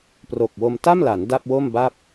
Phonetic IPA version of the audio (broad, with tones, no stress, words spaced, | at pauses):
pro˨˩k̚wo˧m ta˥˩mla˩˦n da˥˩p̚wo˥˩mba˥˩p̚